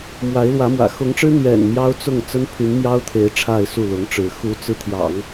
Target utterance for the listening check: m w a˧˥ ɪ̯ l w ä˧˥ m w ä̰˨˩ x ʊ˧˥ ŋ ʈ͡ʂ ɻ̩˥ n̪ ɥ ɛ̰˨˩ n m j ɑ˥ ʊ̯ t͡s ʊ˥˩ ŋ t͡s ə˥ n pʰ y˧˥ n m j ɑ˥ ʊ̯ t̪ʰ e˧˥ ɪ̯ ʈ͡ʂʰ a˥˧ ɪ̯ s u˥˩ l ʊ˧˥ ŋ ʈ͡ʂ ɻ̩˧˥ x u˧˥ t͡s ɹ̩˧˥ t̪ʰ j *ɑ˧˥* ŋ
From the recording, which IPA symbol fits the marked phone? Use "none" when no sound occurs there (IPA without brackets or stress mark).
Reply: ɑ̰˨˩˦